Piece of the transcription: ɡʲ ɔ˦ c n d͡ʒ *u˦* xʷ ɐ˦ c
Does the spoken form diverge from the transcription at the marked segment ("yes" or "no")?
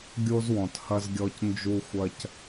no